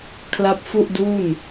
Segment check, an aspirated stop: present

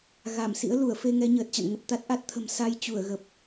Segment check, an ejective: absent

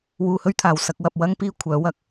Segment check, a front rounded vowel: present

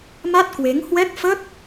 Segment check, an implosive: absent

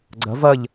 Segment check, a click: present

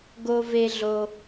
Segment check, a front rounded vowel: absent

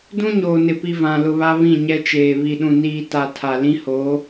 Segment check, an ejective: absent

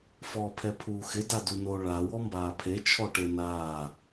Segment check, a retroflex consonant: present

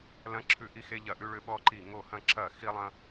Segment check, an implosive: present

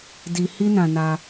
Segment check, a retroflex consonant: absent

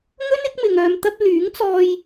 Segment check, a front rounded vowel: present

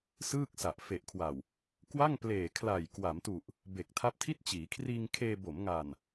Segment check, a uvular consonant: absent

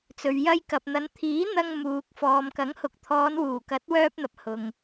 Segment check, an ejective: absent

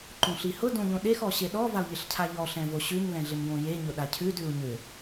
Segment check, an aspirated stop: present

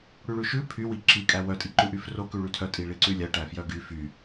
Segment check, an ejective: present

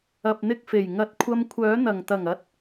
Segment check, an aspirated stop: present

